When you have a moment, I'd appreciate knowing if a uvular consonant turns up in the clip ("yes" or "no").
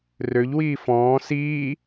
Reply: no